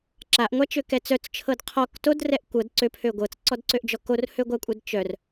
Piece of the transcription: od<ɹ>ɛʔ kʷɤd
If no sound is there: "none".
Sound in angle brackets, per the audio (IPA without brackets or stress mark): r